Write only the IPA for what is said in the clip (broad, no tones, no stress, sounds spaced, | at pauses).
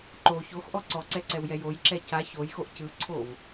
ǃ o ç o x ʔ ɔ ǀ ɔ ǀ ɛ ǀ ɛ w j ɛ j o j ǁ ɛ c a ç o j x o ʔ c ɯ ǀʰ o v